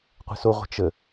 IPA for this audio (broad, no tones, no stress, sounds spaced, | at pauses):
qʷ ə̤ s o ʁʷ ə̤ t͡ʃ ə